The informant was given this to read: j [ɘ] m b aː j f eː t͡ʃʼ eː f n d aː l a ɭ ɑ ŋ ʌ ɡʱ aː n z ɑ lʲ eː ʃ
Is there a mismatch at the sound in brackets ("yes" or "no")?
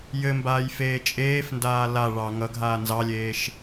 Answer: no